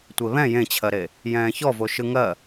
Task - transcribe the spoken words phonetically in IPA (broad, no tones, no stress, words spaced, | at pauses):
tʷeβɛ̃ jẽt͡ɕʰɜɾe | jɛ̃ːçɔvo ʃɯŋɜ